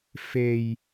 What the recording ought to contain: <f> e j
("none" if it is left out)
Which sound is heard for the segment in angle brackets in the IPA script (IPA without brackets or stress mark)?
f